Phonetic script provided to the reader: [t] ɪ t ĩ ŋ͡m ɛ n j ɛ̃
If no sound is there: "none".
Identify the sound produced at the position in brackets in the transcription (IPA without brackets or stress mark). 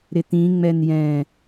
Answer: ɾ